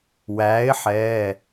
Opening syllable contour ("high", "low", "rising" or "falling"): rising